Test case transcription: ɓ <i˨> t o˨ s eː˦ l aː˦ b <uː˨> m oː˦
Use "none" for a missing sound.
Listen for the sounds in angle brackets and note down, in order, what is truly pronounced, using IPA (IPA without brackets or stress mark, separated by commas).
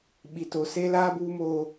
i˨, uː˦